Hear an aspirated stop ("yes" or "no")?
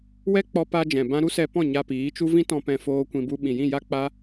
no